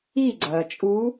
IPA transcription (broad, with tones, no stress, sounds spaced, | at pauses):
i˥˩ ɡ͡ǀ ɐː˩ t͡ʃʼ u˧˥